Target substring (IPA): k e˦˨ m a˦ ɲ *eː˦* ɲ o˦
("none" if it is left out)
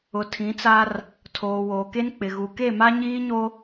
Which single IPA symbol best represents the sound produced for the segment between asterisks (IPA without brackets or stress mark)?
iː˦